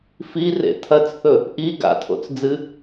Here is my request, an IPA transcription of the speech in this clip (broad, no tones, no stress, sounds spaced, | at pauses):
f i r ḛ tʰ ɐ t͡s θ ɵ | ʔ i ɡ a̰ tʰ o̰ t͡s d͡z ɨ